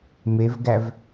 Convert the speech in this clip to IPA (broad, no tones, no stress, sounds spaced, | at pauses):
m e v ɡ æ v